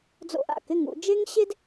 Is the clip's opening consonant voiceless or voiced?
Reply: voiced